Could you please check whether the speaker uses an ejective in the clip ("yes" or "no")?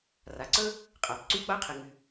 yes